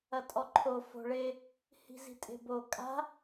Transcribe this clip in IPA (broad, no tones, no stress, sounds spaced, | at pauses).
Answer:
ɐ tʼ ɔ ǃʰ o f o̤ ɭ e | h i̤ z i̤ tʼ e̤ b o kʼ a̤